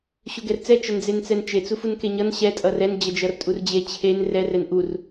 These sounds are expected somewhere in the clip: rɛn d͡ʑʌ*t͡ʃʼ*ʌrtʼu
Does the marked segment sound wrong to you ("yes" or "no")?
yes